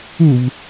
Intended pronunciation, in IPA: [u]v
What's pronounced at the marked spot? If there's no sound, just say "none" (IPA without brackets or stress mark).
u